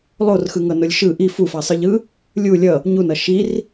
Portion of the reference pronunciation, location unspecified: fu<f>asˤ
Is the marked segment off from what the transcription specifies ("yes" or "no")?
no